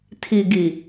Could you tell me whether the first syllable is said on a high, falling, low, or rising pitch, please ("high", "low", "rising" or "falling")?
low